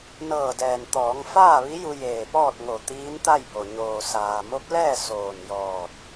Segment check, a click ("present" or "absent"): absent